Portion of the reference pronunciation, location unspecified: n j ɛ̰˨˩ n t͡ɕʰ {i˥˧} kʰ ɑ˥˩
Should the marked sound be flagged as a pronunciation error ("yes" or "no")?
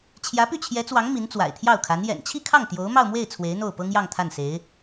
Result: no